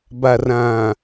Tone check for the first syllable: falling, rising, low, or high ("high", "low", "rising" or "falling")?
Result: low